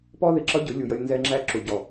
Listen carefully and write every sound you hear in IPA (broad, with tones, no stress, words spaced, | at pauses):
pɔ˦ðɪ˨ǁʌ˦ɟʊ˨˦ lʲu˨jʌ˧lʲ nzɛ˧ŋ͡ǁæ˧ ǁu˨ɟɔ˨